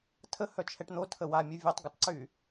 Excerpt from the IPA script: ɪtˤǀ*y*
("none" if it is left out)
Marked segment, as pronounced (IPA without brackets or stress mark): y